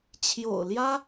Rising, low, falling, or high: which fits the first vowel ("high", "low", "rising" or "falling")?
low